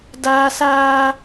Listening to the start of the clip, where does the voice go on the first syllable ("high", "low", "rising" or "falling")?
high